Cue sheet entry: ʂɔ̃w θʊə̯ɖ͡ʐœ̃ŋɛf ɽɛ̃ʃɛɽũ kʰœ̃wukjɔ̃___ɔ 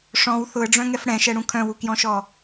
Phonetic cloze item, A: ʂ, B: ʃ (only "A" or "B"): B